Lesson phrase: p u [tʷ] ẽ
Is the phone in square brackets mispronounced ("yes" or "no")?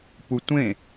no